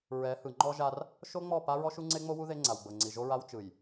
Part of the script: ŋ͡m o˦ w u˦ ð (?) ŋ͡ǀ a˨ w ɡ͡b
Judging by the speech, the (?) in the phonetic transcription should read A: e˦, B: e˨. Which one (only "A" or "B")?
A